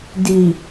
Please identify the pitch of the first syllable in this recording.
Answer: low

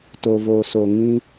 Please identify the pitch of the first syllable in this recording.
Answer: low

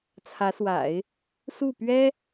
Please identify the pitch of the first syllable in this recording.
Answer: rising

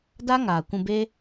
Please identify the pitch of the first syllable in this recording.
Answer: high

